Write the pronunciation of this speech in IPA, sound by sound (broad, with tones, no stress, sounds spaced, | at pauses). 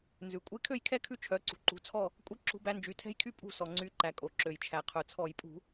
n z ʉ˩ kʷʼ e˦ kʰ ø˥˨ j kʰ ɛ˥˨ kʰ ʉ˦ t͡ʃʰ œ˩˧˩ ǀ ṳ˩ ǃ ṳ˩˧˩ t͡sʰ ɔ˥˨ | kʷʼ i˦ ǁ ṳ˦ b æ˦ n d͡ʒ y˩˥ tʰ ɛ̤˦ j kʰ y˦ pʼ ṳ˥˨ s ɔ˩ ŋ͡ǀ y˩˥ ǃ æ˩ kʼ o˩ ǁ ø˩ j t͡ʃʰ æ˩ qʰ œ˩ t͡sʰ ɔ˧˩˧ j pʼ ṳ˧˩˧